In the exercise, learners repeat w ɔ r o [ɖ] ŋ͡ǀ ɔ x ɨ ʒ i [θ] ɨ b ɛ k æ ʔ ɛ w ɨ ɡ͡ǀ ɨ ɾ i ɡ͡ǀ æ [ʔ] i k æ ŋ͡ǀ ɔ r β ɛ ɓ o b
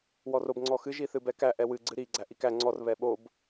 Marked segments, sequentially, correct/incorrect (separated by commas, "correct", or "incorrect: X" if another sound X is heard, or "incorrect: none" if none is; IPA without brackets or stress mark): incorrect: b, correct, correct